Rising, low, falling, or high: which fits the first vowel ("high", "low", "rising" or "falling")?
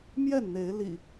falling